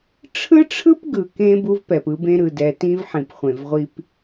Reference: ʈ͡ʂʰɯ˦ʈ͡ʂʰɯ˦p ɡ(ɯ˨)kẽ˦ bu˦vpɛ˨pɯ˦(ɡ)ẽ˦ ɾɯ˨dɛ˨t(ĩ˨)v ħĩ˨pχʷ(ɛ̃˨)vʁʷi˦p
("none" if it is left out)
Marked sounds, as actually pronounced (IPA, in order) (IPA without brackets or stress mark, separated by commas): ɯ˨, b, ĩ˦, ẽ˨